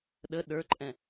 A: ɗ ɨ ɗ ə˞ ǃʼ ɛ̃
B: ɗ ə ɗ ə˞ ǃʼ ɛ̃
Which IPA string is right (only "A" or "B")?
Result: B